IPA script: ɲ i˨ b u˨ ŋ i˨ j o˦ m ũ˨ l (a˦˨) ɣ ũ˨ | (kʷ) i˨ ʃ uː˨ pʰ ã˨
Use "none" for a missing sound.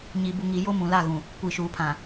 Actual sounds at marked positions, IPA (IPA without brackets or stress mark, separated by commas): a˦˨, kʷ